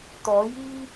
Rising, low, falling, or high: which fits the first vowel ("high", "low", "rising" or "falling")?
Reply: rising